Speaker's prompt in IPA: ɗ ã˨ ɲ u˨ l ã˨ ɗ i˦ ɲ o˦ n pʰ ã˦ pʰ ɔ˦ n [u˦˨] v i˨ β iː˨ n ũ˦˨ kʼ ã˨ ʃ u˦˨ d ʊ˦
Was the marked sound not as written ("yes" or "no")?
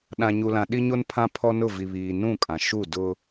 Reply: yes